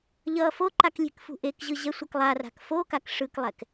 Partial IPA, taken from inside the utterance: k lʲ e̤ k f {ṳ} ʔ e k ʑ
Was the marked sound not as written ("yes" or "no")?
no